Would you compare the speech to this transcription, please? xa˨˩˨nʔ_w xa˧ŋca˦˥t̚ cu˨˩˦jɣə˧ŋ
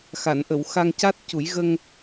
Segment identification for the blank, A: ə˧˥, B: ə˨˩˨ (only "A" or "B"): B